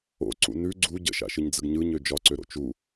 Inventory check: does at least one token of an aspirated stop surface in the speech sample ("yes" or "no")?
no